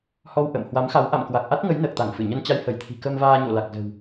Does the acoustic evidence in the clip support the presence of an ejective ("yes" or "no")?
no